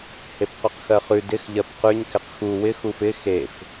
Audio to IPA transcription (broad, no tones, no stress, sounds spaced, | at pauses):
h e p q ʉ q x ɜ χ ʉ d ɪ x ʎ ɜ p q ʉ ɲ k ɪ q x u w ɪ x u f ɪ x e f